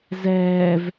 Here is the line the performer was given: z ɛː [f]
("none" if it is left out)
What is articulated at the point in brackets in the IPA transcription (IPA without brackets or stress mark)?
v